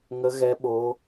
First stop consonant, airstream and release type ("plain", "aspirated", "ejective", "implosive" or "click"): implosive